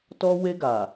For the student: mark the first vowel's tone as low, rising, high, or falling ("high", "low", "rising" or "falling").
high